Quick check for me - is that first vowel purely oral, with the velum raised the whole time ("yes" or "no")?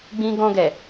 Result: no